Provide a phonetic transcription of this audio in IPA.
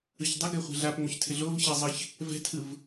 ɯ ç dˤ ɪ ɡ ɛ χʷ ɛ̤ ɮ a p ŋ͡m o ç tʰ ɪ ɮ o v ç ɛ zˤ ɨ ç | v ɛ̤ tʰ ɯ v

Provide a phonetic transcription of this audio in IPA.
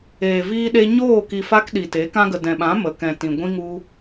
eː˨ v iː˧ ɗ e˧ ɲ oː˦˨ k i˨ f a˧ k ɗ i˨ t e˨˦ k ã˦ ɡ ə˨ d ɛ̃˨ ɓ ã˨˦ m ə˨ k ɛ̃˨ t ĩ˨ ɡʷ ĩ˧ ŋ u˧

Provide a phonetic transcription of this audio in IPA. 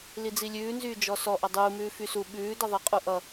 l i d͡z i lʲ ʉː n z yː d͡ʒ ɔ s ɔ ʔ ʌ dˤ uː m ʉː f y s u ɓ ʉː d ʌ ðˤ i qʼ u ʔ ʌ

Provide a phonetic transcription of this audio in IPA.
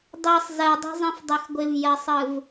dˤ i sˤ z ɜ dˤ ɛ̤ zˤ ĩ f dˤ ɛ x ɡʷ ɪ v j ɜ sˤ ɯ v

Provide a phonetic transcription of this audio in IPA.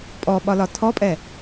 pʼ ɔ ɓ ɒ l ɒ tʰ ɔ pʼ ɛ

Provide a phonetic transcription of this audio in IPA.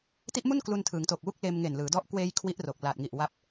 t i˦˥ ʔ m u˥˩ n k l u˧ n tʰ ɯː˩˦ ŋ t o˨˩ k̚ w u˦˥ k̚ l eː˧ m ŋ e˨˩ n l ɯː˩˦ d ɔ˥˩ ʔ k w eː˧ j kʰ w i˦˥ ʔ r o˨˩ k̚ l aː˨˩ t̚ ŋ i˨˩ ʔ w a˦˥ p̚

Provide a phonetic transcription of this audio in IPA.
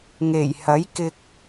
ŋ e˨˩ j h ɐ˨˥ j k ɪ˧ k̚

